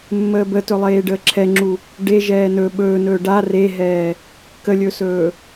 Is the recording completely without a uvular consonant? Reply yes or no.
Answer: yes